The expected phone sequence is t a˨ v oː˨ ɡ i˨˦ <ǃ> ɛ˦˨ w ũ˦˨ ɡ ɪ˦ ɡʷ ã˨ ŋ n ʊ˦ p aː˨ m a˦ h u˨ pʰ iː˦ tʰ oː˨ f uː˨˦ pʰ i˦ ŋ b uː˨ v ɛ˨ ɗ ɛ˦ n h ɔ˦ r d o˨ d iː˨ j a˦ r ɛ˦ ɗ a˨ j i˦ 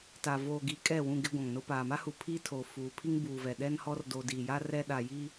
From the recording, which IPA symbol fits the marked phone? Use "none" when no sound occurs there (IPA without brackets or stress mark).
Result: kʼ